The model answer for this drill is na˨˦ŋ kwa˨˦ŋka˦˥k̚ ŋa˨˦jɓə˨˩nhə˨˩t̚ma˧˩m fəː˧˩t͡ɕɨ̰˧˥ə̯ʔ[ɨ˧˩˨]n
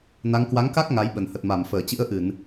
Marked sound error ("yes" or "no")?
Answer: no